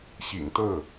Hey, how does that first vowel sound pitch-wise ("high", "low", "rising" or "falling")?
low